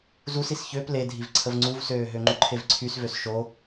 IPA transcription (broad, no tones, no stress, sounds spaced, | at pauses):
z u s i s ç ø p l e dʱ i v ǀʰ ə v ŋ͡ǀ u v s øː ɦ ø ŋ͡ǃ u ǃʰ e v ǀʰ y s v ø s ʃ o